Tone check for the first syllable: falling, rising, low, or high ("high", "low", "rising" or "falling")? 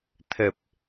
low